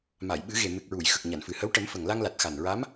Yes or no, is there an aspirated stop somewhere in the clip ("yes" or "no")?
no